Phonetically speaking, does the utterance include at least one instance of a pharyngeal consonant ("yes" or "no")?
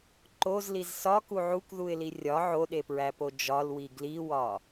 yes